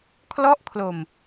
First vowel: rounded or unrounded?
rounded